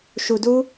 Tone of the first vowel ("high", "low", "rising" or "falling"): low